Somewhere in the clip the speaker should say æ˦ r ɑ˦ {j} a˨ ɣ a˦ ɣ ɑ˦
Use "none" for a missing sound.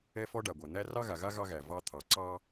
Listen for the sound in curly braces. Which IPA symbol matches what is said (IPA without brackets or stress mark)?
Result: ɣ